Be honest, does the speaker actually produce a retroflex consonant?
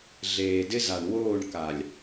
yes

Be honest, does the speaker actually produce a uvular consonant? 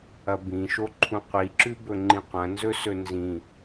yes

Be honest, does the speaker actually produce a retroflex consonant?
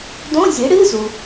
yes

